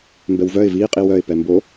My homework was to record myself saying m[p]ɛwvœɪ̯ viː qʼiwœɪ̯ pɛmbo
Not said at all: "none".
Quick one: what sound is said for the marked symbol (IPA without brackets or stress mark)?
b